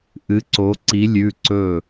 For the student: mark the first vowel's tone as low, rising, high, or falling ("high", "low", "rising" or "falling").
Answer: rising